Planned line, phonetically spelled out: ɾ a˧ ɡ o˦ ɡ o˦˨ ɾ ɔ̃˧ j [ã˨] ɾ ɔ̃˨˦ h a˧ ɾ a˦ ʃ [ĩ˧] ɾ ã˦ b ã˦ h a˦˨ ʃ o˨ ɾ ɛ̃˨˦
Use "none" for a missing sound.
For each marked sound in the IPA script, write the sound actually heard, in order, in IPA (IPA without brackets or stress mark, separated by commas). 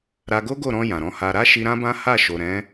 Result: ã˨, i˧